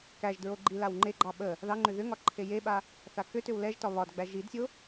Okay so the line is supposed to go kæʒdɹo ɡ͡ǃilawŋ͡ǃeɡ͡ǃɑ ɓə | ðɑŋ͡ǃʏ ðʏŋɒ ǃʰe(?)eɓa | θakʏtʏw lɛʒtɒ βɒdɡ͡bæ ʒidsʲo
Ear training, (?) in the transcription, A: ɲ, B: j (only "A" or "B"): B